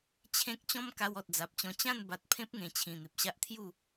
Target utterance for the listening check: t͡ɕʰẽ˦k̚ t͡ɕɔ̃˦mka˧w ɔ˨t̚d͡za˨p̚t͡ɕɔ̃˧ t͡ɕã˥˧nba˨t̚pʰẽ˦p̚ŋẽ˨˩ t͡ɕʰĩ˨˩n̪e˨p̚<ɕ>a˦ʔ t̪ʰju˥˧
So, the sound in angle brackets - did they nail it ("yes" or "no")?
yes